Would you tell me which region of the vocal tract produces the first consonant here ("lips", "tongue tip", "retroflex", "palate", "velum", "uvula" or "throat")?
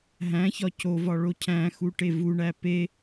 throat